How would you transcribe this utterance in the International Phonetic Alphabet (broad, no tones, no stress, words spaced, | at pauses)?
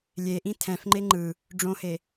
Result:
lʲeʔĩ tʰɛ̃fŋ͡ǃe ŋ͡ǃɯ | ɖ͡ʐõhe